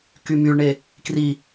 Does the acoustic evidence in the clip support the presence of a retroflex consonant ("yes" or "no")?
yes